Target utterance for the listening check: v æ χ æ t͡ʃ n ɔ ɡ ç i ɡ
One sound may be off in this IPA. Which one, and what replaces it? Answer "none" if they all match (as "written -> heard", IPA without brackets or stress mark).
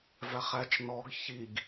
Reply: none